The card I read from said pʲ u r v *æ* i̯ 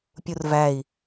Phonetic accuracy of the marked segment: correct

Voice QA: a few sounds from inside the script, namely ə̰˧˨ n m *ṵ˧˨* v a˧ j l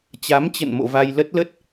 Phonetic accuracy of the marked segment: incorrect: o̰˧˨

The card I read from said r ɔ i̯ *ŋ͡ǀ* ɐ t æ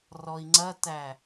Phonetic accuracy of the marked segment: correct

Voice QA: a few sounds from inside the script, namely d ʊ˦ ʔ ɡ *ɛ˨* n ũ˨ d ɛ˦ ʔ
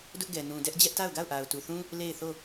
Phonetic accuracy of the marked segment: correct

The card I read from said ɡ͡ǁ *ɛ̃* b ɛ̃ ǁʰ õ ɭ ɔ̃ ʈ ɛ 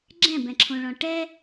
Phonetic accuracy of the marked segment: correct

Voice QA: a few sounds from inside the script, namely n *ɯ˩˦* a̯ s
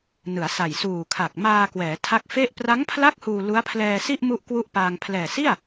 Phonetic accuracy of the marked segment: correct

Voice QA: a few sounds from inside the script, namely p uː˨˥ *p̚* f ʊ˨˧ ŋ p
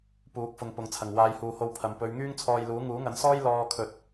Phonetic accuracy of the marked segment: incorrect: k̚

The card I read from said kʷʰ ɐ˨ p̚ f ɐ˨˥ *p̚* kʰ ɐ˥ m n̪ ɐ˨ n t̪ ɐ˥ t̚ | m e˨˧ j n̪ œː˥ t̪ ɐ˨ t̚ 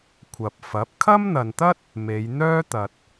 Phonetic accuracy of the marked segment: correct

